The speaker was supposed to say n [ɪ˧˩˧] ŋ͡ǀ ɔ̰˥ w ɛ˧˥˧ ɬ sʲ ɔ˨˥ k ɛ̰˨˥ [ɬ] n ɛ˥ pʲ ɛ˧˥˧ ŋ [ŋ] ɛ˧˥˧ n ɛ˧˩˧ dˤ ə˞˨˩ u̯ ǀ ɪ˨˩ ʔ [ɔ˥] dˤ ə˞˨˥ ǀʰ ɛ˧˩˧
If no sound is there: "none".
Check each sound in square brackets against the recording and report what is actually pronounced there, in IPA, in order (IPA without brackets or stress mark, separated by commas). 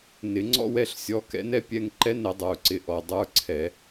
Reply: ɪ˧˩˧, none, ǃ, ɔ˨˩